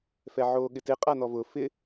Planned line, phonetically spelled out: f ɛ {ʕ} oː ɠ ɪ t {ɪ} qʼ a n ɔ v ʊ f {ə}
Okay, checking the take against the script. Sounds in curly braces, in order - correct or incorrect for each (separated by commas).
correct, correct, incorrect